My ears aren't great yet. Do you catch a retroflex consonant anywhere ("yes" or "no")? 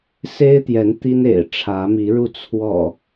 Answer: yes